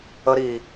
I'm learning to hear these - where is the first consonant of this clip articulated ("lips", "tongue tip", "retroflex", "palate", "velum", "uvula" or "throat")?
tongue tip